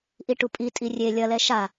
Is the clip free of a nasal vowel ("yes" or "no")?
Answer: yes